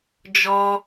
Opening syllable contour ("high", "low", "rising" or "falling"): low